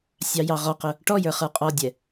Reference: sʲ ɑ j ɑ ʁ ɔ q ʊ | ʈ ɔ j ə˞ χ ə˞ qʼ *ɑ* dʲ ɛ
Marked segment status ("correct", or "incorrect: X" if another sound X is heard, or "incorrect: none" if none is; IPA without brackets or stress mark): incorrect: ɔ